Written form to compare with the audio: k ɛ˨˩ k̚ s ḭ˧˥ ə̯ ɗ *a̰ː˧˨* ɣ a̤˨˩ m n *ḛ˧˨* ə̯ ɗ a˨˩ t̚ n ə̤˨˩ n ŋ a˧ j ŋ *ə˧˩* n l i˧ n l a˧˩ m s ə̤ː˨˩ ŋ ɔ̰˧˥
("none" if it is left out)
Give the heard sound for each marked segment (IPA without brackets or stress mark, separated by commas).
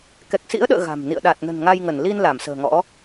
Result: ə̰ː˧˨, ḭ˧˨, ə˧˩